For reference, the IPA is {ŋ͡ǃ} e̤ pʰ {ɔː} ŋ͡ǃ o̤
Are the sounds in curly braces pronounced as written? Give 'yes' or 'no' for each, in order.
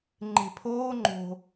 yes, no

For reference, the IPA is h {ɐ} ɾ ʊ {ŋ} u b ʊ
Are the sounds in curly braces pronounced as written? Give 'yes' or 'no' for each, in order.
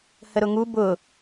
no, yes

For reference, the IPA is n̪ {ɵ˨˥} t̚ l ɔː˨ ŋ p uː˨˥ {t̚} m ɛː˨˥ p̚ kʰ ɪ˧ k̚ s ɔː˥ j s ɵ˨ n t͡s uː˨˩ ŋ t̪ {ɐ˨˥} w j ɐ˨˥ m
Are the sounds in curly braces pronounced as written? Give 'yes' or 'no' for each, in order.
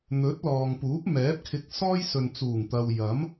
yes, no, no

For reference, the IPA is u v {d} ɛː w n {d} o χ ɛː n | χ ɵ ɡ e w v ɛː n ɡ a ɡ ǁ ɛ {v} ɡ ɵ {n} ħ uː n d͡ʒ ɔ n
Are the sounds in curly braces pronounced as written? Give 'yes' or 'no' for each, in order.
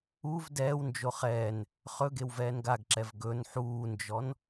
yes, no, yes, yes

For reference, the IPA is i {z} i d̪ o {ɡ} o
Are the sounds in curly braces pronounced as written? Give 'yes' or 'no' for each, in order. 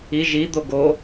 no, yes

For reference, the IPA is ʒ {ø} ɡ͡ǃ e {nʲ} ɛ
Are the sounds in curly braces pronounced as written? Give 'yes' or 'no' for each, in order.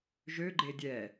yes, no

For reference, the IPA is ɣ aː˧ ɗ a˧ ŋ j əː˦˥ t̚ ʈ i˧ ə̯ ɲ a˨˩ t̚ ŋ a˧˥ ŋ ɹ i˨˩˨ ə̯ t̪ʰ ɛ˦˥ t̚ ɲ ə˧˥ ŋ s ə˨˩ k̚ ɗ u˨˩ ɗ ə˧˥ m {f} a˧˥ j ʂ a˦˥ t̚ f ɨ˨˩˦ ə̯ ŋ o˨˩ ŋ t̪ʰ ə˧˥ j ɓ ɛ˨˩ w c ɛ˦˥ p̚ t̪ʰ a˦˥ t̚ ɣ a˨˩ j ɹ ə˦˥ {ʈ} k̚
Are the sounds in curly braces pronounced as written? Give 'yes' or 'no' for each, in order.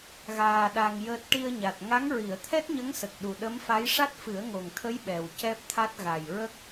yes, no

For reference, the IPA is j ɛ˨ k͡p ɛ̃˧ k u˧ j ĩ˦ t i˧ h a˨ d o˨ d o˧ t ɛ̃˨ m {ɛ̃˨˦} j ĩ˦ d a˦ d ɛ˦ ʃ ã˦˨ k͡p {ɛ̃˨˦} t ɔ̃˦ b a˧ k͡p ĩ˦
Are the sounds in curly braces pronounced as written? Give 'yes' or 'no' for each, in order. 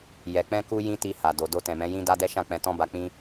yes, yes

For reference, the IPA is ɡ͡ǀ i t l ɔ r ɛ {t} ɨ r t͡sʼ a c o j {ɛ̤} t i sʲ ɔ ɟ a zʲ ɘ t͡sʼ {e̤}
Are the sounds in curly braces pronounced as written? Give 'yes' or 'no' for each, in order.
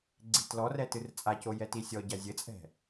yes, no, no

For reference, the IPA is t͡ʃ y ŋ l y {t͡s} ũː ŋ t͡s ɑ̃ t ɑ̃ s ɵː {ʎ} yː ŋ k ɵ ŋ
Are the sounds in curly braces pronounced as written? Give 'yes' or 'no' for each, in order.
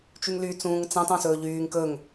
yes, yes

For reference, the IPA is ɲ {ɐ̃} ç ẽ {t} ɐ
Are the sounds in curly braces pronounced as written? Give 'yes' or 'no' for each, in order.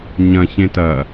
yes, yes

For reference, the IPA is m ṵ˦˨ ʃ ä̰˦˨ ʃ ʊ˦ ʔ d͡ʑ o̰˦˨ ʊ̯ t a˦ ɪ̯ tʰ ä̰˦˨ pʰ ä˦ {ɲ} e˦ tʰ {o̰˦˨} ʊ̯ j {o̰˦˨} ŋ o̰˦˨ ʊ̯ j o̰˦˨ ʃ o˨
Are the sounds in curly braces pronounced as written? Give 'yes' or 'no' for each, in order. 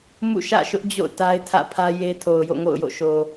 no, no, yes

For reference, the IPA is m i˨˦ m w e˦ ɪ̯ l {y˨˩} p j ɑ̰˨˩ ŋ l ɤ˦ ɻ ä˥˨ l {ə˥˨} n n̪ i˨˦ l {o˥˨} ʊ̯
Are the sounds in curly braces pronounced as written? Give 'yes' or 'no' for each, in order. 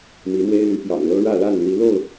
no, no, yes

